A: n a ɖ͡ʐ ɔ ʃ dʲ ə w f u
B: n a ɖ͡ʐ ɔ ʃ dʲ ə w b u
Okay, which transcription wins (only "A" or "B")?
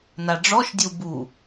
B